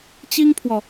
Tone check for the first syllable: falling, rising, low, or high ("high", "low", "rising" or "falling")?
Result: high